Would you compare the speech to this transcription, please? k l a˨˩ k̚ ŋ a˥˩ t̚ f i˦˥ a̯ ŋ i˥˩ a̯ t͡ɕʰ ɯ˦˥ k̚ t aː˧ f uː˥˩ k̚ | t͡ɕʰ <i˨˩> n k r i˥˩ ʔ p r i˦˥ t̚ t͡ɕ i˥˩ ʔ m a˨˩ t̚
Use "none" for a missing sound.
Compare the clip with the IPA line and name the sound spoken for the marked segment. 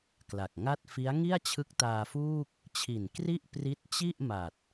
i˨˩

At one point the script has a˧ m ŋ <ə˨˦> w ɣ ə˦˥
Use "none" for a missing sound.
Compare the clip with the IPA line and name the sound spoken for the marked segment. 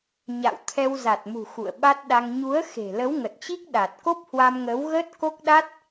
ə˨˦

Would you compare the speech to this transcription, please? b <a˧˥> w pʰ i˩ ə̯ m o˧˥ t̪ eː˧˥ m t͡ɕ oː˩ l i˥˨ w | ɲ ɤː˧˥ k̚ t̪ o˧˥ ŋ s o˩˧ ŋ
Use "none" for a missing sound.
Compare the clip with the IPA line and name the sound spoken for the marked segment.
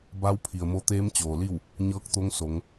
a˧˥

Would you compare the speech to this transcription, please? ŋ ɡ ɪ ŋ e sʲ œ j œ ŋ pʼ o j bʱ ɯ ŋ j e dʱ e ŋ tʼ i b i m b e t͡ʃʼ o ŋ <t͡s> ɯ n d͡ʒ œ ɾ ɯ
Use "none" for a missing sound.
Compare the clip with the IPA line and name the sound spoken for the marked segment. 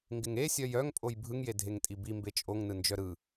n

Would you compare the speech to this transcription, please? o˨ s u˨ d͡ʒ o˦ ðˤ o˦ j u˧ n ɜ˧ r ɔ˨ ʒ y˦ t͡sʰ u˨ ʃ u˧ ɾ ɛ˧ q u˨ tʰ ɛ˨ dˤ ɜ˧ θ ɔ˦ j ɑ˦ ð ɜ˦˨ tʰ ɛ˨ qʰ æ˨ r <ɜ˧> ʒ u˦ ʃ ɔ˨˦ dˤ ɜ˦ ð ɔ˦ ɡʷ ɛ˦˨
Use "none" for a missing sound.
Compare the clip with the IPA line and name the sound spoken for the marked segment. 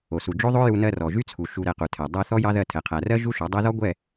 ɜ˦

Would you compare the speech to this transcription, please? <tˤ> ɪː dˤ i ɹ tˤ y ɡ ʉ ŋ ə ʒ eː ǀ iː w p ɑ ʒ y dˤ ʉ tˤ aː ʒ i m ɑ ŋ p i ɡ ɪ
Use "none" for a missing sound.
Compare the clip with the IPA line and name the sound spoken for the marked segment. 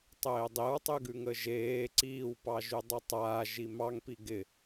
tˤ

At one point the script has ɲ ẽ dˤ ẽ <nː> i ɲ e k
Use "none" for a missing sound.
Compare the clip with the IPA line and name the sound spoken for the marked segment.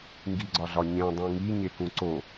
ŋ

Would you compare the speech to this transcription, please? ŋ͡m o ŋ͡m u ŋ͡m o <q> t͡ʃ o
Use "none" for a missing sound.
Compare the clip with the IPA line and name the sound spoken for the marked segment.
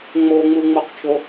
q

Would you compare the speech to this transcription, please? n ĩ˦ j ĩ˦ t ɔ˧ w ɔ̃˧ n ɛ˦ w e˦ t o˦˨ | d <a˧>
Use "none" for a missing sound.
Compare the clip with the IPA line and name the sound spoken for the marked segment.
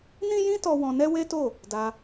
a˧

